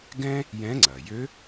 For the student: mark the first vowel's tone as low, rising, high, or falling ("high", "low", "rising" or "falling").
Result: high